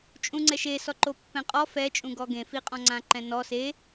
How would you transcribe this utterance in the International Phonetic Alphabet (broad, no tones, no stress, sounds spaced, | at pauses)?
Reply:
t͡ʃʼ ũ ŋ͡ǀ ɛ ʃ e s ɔ ǃ o pː ɛ̃ qʼ ɔ f ɛ t͡ʃʼ ũ ɡ ɔ ɡ ẽ f i qʼ ɔ̃ ŋ͡ǀ ã ǃ ɛ̃ n ɔ s e